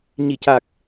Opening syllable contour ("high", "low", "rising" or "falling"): low